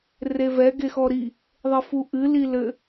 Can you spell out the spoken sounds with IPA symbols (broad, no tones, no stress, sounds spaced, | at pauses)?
r e v ɛ ɡ e x ɔ ɾ i | ðˤ ɘ f u ʔ ɨ l i l ɘ